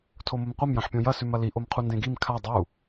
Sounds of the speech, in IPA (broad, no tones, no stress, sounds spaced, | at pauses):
tʰ o m o m qʷ ɐ m j ɐ̃ ħ pʲ õ j ɐ s ʉ m ɐ l i ʔ o m qʰ u n d ẽ ɡ i m kʰ a dˤ u